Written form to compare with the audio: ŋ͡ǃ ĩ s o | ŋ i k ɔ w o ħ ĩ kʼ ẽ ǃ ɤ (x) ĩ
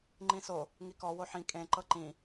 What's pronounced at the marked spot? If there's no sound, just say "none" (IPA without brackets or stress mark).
ǃ